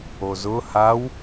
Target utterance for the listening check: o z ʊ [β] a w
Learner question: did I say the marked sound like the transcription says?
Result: no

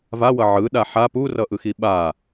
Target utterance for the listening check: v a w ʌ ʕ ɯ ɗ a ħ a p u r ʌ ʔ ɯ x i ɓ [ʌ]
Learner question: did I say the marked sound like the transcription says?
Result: no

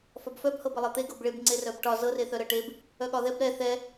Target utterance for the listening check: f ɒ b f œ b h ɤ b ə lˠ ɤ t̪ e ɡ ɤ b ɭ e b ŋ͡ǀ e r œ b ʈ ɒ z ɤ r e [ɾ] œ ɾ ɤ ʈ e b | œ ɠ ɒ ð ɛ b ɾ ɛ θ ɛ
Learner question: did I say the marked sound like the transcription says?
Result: no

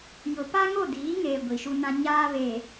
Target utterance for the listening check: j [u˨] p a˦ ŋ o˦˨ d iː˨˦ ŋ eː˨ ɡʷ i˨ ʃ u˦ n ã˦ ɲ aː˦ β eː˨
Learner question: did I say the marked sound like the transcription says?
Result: no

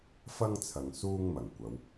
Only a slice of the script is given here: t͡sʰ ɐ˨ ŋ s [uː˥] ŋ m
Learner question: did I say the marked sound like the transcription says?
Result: yes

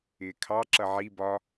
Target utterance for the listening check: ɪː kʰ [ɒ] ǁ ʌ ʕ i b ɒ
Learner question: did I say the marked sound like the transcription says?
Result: no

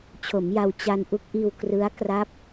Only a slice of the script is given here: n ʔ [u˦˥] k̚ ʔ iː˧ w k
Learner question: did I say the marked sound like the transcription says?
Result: yes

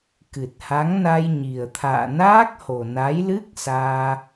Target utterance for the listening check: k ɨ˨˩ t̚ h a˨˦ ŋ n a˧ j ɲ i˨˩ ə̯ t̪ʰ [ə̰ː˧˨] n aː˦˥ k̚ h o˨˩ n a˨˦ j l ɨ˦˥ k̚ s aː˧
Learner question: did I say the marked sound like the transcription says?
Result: no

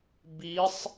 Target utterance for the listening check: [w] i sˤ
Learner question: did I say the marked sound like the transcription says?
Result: no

